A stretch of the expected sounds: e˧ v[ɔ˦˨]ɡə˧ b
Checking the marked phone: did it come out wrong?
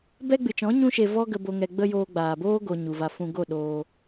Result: yes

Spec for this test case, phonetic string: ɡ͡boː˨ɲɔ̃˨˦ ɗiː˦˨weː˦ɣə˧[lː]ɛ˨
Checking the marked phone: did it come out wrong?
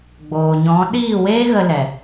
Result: yes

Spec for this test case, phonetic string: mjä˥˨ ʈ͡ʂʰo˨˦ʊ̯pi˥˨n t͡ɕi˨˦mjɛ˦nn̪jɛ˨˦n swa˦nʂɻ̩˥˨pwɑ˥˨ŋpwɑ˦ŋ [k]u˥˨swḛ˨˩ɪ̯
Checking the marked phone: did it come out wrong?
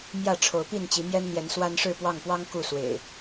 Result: no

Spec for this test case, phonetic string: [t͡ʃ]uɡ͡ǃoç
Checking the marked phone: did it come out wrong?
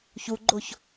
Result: yes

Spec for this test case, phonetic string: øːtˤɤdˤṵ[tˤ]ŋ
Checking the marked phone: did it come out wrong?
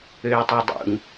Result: yes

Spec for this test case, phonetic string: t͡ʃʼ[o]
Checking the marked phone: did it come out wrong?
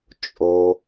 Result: no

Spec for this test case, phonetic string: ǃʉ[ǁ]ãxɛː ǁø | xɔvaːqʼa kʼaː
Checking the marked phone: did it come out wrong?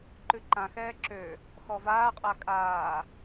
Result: yes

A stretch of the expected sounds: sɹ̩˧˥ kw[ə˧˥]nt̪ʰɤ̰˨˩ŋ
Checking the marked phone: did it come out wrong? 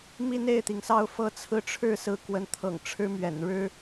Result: no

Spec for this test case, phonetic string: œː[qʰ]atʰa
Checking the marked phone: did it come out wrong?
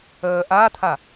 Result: yes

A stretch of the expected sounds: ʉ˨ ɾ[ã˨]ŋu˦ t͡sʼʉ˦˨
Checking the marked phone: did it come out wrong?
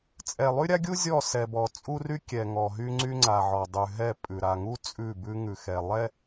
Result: yes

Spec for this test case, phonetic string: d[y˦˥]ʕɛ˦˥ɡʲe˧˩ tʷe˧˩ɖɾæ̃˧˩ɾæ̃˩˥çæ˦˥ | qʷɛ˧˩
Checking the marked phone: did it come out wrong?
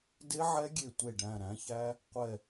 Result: yes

